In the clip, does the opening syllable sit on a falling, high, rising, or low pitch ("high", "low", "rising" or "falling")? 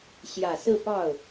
low